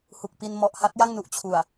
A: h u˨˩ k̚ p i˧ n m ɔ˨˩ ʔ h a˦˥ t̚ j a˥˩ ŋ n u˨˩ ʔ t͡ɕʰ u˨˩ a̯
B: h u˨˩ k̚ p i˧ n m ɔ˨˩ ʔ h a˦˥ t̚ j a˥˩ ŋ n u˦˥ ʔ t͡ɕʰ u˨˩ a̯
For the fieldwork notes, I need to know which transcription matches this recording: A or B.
A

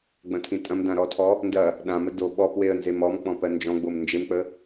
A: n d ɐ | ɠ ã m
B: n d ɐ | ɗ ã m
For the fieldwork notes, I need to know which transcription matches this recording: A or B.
B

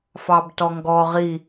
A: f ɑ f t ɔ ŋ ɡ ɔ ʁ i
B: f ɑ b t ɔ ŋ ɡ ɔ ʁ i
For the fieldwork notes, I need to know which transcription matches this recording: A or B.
B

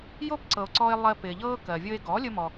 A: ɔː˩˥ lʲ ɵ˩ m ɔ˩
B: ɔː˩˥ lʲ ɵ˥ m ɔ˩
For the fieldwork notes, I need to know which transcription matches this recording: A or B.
B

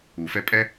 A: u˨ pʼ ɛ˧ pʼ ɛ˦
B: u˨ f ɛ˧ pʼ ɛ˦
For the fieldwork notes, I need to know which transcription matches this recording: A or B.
B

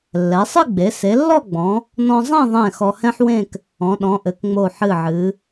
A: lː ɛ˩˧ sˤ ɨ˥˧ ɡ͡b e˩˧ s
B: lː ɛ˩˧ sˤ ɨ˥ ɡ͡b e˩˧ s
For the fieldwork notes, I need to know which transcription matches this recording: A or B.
A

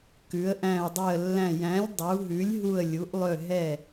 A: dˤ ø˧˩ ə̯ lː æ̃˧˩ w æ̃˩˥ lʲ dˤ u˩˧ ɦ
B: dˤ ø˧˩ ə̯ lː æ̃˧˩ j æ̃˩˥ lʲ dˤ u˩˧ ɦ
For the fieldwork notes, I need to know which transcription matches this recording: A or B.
B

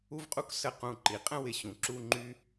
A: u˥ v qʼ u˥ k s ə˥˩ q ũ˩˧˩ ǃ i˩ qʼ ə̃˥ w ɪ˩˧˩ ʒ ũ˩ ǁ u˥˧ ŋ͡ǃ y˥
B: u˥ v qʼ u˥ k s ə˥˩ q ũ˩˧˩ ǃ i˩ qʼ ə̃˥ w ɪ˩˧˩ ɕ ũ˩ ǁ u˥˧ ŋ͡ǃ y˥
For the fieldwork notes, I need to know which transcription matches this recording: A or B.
B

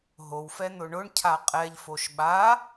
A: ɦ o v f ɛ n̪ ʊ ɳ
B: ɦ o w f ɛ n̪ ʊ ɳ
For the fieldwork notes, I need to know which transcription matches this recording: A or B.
B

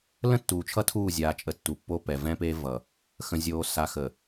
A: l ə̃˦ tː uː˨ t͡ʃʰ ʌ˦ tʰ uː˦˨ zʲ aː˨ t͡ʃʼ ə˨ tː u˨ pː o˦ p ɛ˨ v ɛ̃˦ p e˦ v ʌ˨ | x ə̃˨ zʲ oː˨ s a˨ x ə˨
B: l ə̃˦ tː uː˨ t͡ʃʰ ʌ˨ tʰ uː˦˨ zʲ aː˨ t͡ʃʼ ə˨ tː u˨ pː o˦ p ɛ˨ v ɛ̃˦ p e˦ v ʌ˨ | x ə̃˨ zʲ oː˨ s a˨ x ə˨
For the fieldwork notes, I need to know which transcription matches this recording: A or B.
A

